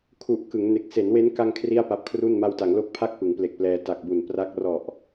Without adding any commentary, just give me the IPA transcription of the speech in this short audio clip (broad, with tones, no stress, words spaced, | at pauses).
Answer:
kʰu˨˩ʔ kɯ˩˦ŋne˨˩k̚ se˩˦nwe˦˥n ka˧ŋ kʰri˥˩a̯pa˦˥p̚ kʰru˥˩n ma˧wta˩˦ŋlo˦˥k̚pʰa˥˩k̚ pɯ˩˦ŋple˨˩k̚plɛː˧ ta˨˩k̚bu˨˩n pra˦˥k̚ rɔ˨˩ʔ